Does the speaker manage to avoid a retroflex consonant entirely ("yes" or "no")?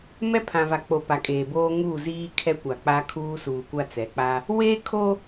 yes